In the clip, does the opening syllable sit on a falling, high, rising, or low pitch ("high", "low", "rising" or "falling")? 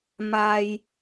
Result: high